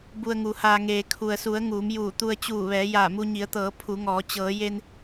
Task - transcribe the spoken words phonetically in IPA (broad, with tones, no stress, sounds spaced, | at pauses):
b u˧ ə̯ ŋ u˩˧ h aː˧ ŋ eː˩ kʰ u˩ ə̯ s u˩˧ ə̯ ŋ uː˩˧ m j uː˧˩ t̪ u˧ ə̯ t͡ɕ uː˧˩ ʋ ɛː˩˧ j aː˧˩ m u˧ ɲ i˩˧ ə̯ t̪ ɤː˩˧ pʰ u˩˧ ŋ ɔː˩˧ t͡ɕ ɤː˩˧ j e˧ n